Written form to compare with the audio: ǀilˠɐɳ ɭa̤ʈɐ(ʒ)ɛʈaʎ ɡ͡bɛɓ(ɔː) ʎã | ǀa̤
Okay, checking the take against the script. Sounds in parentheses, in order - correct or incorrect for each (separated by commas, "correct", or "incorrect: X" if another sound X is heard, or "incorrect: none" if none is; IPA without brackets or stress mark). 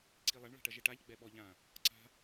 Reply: correct, incorrect: ɔ